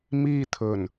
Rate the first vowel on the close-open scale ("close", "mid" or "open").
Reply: close